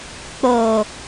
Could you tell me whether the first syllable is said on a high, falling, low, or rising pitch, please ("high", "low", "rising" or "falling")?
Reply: low